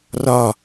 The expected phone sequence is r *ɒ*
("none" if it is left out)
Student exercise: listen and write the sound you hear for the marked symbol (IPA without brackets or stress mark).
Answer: ɒ